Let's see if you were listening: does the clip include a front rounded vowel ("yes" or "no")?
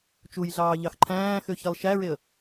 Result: yes